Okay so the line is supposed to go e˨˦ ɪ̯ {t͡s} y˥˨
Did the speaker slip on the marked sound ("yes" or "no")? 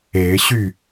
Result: yes